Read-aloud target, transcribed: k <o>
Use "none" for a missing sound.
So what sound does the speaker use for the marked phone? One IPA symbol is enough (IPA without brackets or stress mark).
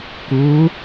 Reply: u